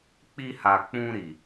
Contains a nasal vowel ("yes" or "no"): yes